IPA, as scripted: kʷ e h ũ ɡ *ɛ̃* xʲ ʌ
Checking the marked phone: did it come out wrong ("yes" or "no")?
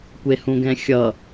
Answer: no